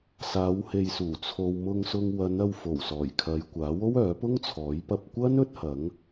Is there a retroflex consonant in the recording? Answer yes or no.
no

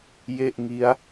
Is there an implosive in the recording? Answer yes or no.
no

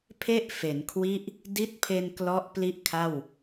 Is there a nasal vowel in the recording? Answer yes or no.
no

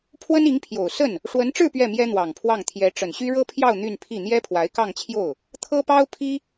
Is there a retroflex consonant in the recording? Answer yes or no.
yes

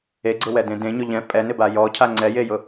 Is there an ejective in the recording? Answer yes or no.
yes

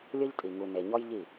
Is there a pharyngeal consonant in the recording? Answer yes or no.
no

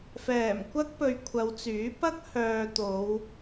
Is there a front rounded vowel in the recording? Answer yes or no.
yes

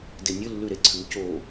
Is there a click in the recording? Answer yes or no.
yes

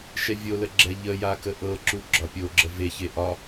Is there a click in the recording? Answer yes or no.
yes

